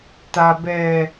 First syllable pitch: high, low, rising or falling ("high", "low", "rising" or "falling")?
low